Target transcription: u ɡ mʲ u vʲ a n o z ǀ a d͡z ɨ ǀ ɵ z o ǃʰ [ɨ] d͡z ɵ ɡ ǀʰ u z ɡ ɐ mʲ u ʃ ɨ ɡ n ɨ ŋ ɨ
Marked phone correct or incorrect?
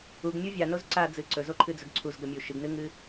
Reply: correct